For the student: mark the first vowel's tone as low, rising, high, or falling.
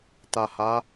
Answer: low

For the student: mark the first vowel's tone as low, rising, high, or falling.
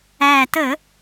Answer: low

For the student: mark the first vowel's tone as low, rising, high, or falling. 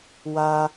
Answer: high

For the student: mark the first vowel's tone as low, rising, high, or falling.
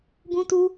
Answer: high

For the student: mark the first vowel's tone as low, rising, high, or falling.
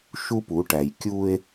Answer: high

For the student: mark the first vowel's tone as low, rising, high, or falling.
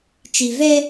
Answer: low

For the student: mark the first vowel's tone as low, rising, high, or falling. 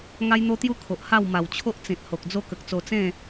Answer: high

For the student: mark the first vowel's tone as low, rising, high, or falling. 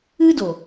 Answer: high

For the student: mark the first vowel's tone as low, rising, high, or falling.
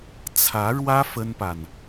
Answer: rising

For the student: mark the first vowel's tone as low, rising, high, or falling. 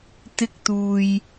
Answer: high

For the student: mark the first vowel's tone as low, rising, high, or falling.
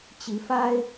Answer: rising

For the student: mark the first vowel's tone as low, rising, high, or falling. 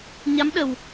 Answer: rising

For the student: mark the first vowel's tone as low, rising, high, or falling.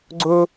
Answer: high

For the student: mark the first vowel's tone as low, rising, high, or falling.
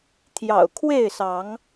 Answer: low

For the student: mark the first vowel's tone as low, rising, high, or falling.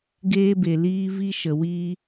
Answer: high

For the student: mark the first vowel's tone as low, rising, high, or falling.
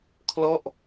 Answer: falling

